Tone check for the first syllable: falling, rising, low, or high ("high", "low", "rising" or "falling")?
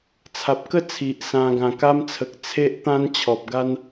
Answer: low